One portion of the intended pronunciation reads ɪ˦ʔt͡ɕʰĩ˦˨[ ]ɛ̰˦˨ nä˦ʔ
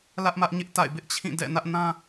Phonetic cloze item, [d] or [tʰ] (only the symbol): d